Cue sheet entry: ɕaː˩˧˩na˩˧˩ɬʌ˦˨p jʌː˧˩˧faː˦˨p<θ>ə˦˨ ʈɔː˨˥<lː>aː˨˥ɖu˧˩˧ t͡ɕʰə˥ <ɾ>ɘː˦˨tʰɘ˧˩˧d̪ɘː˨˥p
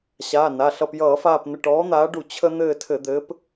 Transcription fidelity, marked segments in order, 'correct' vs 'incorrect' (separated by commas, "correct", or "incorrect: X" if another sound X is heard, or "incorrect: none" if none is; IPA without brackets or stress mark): incorrect: n̪, incorrect: n̪, incorrect: n̪